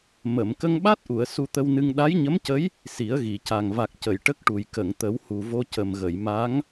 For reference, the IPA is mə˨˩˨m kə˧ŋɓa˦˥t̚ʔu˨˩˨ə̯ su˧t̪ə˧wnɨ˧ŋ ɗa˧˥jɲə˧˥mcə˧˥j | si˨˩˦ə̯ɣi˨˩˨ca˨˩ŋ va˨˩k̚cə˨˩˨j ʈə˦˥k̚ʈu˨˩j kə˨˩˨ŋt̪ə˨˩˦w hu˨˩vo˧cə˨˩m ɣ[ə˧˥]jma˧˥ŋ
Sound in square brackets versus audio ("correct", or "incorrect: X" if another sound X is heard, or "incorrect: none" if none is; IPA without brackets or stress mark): incorrect: ə˨˩˨